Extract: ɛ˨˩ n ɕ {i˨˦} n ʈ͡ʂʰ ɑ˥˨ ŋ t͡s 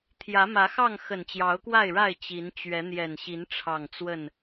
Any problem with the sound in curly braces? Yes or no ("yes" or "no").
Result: no